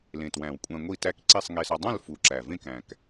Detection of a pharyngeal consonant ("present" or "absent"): absent